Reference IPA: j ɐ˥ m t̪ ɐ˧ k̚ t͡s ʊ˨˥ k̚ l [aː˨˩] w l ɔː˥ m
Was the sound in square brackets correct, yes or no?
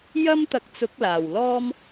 yes